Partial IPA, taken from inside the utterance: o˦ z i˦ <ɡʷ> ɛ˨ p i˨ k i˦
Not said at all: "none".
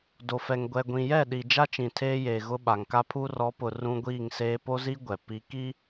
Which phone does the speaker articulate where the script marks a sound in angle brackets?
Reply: ɡʷ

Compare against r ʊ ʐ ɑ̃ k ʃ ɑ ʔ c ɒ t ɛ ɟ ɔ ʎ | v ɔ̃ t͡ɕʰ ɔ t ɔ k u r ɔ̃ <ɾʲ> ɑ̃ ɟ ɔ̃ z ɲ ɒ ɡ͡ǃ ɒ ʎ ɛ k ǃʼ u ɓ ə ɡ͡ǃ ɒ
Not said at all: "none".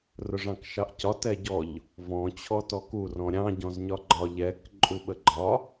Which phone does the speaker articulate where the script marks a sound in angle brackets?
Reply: ɾʲ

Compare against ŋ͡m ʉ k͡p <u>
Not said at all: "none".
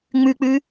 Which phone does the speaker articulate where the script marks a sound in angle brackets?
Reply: ʉ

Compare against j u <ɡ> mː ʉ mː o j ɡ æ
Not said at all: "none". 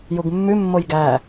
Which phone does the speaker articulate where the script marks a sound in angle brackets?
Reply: ɡ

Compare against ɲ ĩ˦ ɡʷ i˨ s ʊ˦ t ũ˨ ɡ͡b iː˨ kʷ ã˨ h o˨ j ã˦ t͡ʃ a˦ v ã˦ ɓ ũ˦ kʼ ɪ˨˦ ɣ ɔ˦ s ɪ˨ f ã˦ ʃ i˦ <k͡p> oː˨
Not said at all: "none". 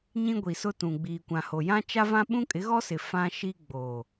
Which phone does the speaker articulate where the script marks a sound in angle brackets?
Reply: ɡ͡b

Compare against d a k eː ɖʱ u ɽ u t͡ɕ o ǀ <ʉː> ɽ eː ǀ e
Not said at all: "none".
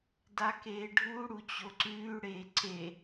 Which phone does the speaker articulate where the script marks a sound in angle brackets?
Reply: ʉː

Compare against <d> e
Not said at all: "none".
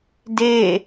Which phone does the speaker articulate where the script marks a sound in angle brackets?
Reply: d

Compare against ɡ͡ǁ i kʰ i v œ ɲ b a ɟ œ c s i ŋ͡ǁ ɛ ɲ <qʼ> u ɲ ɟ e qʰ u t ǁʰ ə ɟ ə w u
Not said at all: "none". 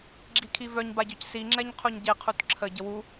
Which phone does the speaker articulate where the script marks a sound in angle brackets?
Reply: qʰ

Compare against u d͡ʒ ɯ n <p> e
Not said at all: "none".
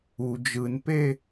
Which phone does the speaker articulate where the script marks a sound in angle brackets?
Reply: p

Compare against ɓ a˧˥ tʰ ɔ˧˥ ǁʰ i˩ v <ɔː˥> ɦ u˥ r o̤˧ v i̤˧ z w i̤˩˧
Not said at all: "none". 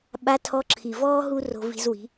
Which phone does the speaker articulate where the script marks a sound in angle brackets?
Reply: ɔː˥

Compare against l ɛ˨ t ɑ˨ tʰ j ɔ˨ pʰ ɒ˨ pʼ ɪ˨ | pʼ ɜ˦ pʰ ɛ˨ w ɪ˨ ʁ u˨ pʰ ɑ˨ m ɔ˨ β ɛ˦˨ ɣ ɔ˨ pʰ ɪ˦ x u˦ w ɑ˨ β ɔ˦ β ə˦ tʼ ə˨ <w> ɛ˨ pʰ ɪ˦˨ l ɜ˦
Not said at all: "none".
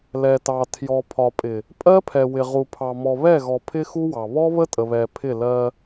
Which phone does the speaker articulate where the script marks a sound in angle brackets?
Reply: β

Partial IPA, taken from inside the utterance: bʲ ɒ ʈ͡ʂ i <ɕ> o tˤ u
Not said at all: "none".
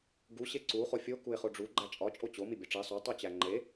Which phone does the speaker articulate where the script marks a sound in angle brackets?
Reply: sˤ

